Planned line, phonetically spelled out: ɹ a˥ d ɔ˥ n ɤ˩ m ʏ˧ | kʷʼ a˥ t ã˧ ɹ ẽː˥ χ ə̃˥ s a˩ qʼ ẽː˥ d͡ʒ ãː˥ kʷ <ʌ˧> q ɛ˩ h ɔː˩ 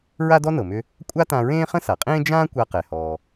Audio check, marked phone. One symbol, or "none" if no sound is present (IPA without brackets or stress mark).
a˧